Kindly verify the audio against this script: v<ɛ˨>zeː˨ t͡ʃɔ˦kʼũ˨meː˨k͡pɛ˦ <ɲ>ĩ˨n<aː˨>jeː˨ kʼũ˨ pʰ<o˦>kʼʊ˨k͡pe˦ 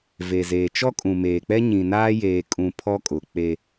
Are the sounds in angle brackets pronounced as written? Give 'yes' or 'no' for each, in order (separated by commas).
no, yes, no, no